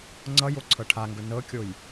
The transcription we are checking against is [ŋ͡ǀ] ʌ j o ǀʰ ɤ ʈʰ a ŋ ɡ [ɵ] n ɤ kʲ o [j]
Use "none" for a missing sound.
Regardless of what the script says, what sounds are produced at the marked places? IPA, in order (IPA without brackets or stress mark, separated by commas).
ŋ͡ǀ, ɵ, j